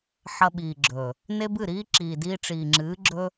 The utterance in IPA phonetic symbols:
ħ ɐ˧ ɓ iː˨ ɡ͡ǁ ɵ˨ | n e˦ b ɨ˦˨ ɾ iː˦ ǁ iː˨ d iː˧ ʈ͡ʂ iː˨ ŋ͡ǁ ɨː˨˦ ɡ͡ǁ ɵ˦

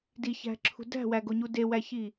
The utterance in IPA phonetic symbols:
d i ç æ̤ ǁʰ ṳ d æ̤ w æ ɡ o ɲ u d e w æ ç i

